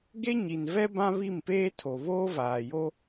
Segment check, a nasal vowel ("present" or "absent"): present